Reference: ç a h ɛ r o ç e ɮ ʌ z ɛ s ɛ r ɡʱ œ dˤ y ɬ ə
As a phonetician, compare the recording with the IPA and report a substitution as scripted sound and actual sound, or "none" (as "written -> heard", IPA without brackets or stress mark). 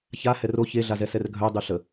ʌ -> a